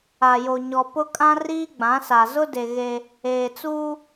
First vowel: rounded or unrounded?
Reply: unrounded